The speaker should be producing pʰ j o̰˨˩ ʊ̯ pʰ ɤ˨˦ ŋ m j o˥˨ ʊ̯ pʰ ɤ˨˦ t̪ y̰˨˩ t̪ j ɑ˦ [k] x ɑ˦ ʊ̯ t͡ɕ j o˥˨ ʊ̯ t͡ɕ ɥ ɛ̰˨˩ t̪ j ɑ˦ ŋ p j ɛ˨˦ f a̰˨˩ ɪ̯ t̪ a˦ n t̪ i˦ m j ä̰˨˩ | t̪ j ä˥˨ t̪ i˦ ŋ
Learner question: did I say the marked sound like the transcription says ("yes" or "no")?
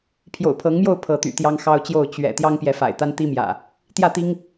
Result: no